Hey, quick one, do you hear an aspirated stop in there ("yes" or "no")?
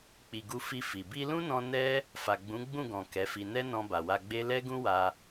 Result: no